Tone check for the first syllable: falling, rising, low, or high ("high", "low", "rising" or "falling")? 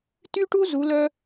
high